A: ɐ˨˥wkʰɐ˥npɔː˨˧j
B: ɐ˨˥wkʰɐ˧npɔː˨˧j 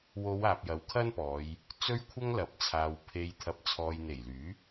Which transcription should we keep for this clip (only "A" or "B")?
A